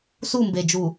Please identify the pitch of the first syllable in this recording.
falling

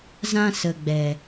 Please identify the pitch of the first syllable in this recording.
high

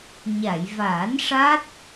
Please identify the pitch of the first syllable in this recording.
low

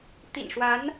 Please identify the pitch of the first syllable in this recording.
low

